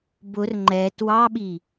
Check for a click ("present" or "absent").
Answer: present